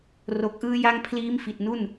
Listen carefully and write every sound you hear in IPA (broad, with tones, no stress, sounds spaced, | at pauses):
r o˨˩ k̚ ʔ ɯː˦˥ j a˦˥ ŋ pʰ l iː˦˥ m f i˨˩ t̚ n u˥˩ n